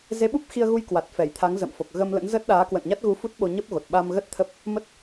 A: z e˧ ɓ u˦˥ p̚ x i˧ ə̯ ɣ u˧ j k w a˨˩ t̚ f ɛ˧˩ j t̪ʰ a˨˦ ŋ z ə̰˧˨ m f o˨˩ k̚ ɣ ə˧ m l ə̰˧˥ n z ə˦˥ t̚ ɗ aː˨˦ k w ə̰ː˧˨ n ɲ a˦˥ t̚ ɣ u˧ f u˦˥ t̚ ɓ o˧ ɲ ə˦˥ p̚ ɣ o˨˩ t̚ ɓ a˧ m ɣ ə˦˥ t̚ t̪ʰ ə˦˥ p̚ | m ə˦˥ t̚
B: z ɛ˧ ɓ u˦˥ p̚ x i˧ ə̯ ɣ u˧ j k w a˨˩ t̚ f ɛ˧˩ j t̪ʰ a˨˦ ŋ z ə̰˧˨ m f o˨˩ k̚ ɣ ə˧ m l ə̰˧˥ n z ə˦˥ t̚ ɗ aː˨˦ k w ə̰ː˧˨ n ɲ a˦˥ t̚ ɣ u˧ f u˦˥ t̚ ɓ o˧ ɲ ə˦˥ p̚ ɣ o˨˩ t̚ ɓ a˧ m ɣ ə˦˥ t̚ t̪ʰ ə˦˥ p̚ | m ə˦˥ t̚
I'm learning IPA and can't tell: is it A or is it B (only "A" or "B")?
A